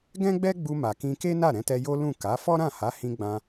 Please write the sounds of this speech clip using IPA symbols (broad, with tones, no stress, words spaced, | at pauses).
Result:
ɡɛ̃˦ɡ͡bɛ˦ɡ͡bu˧ ma˨kĩ˧ke˦ na˦˨ɾɛ̃˧tɛ˧ jo˦lũ˦˨ ka˨˦ fɔ˦ɾã˦˨ha˨˦hĩ˧ ɡ͡bã˧